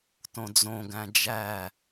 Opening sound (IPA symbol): t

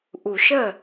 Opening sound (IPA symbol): ʔ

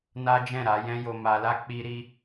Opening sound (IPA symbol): n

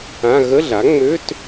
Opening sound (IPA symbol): ã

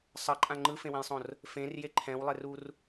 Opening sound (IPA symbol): sˤ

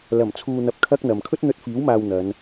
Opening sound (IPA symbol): l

